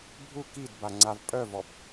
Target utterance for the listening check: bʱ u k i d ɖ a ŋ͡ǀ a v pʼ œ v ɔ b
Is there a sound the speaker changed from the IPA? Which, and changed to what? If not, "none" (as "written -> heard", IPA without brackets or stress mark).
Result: ɖ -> b